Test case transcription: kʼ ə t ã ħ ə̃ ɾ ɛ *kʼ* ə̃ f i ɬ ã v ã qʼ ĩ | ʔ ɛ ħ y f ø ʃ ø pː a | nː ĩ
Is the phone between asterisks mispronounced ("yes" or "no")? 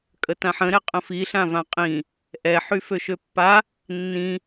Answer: yes